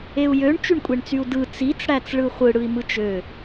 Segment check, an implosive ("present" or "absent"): absent